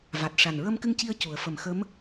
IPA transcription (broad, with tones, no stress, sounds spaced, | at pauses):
v a˨˩ t̚ ʂ a˨˩ n ɹ ə˧ m k ɨ˧ ŋ c i˧ ə̯ c u˨˩˦ ə̯ f ə˨˩ m x ə˧˥ m